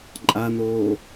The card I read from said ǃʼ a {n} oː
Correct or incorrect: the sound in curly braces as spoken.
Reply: correct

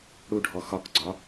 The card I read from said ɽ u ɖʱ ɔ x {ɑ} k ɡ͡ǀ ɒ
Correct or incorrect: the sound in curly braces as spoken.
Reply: incorrect: ɒ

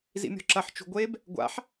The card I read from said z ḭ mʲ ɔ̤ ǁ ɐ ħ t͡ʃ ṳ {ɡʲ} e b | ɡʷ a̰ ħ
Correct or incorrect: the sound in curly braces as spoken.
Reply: incorrect: ɡʷ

